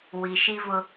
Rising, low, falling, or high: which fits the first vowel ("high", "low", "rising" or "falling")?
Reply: low